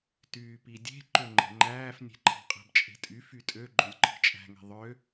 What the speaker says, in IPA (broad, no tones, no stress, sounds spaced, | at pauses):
t yː p i dʲ e̤ ǃ ø ŋ͡ǃ e̤ ŋ͡ǃ æː f nʲ e̤ ǃʰ ɑ̤ qʼ æ̤ b t͡ʃʼ e̤ tʼ y f y tʼ ø ɡ͡ǃ ø lʲ ǃʰ i̤ t͡ʃʼ æ̤ ŋ e̤ ðˤ ø